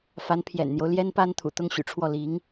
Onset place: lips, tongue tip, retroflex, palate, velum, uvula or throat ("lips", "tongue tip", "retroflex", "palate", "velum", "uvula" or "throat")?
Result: lips